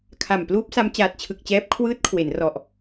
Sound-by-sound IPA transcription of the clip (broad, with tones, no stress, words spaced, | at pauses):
kʰa˨˩m pluː˦˥p̚sa˦˥m t͡ɕaː˨˩t̚t͡ɕʰɯ˨˩k̚t͡ɕɛː˦˥p̚ kʰwɯː˦˥t̚kʰwe˩˦n rɔ˨˩ʔ